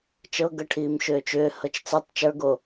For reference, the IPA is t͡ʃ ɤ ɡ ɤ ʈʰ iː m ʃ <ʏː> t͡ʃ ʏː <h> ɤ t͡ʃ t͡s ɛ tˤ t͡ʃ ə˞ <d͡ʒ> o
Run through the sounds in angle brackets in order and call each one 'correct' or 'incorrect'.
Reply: correct, correct, incorrect: ɡ

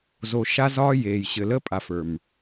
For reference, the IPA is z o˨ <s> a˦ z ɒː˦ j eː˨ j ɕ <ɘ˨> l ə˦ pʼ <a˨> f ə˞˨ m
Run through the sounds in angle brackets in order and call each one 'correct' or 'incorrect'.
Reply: incorrect: ʃ, correct, correct

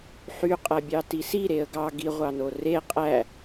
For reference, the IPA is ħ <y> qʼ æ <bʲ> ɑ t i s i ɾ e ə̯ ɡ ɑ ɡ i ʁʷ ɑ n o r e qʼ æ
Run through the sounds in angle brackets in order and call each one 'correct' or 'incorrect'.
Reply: correct, correct

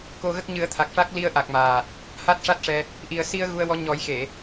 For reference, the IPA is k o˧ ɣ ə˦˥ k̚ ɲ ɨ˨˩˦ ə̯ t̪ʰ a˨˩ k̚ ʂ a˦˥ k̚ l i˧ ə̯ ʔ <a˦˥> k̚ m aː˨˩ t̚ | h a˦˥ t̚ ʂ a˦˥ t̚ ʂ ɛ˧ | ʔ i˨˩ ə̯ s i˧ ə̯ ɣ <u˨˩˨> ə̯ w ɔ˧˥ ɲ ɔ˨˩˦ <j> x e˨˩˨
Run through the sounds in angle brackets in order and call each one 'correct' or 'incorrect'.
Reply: incorrect: a˨˩, incorrect: u˧, correct

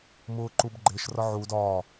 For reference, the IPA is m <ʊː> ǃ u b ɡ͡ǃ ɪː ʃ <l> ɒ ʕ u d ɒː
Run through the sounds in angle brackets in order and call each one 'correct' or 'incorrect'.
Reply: correct, incorrect: r

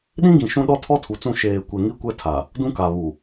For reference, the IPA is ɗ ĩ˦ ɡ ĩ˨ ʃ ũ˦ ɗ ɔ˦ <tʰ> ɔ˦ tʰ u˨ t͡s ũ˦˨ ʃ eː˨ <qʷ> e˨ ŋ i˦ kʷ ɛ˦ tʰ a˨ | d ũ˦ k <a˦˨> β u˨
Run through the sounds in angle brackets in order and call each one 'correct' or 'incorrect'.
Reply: correct, incorrect: kʷ, incorrect: a˨

